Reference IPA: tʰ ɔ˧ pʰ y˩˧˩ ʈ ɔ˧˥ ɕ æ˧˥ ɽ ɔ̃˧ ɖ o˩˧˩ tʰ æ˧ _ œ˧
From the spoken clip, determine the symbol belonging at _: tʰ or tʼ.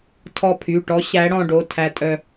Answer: tʼ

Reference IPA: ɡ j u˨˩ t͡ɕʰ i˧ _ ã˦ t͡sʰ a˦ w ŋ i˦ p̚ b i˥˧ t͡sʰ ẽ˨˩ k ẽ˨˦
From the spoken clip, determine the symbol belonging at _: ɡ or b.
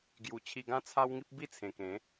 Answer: ɡ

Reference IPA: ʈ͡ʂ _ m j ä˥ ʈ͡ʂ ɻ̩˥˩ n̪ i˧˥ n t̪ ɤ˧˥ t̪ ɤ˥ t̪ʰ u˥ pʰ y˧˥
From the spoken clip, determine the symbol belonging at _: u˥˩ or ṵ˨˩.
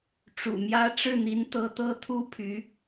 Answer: ṵ˨˩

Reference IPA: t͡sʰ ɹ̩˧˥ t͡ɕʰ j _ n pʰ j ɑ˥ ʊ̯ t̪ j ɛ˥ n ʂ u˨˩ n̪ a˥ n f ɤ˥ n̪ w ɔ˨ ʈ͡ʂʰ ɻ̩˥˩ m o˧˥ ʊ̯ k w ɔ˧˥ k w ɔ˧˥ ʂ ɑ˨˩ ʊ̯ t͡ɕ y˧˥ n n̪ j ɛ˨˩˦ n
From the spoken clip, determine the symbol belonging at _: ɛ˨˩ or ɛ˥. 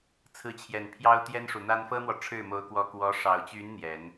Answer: ɛ˨˩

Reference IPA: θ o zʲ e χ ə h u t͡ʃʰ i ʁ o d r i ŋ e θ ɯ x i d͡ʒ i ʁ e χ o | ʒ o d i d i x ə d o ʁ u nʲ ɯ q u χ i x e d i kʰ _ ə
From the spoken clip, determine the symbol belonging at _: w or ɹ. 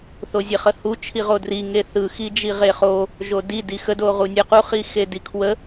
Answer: w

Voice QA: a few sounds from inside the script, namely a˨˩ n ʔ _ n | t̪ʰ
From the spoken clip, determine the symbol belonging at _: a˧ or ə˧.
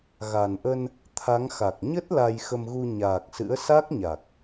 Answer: ə˧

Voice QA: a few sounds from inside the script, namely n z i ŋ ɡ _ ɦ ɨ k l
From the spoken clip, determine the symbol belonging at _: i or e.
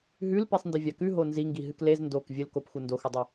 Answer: i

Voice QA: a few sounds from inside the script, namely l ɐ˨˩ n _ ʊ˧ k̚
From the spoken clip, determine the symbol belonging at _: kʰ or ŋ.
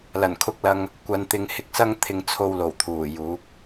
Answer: kʰ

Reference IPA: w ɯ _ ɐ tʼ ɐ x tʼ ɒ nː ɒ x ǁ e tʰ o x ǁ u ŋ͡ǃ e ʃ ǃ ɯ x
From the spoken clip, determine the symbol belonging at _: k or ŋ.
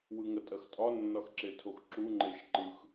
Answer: ŋ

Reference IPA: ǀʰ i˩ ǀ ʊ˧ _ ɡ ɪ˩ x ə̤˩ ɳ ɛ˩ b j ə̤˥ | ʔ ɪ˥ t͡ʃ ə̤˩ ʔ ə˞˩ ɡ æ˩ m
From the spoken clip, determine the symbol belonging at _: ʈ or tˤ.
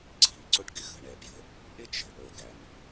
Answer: ʈ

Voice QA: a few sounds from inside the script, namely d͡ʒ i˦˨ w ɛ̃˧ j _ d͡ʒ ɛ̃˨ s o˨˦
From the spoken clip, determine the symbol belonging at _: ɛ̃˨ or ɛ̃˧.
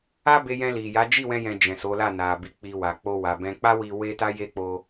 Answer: ɛ̃˧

